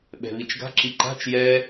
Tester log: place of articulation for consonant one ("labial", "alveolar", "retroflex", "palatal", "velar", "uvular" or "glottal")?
labial